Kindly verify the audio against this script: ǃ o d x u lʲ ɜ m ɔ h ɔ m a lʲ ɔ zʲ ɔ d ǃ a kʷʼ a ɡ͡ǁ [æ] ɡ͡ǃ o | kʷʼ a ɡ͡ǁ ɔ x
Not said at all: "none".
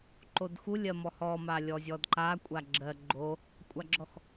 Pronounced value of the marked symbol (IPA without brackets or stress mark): ɜ